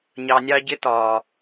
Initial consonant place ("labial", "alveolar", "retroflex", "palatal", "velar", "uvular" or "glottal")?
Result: palatal